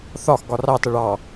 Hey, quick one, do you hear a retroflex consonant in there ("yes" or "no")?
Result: yes